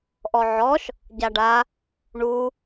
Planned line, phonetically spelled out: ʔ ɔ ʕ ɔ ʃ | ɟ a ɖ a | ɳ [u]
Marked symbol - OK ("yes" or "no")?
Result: yes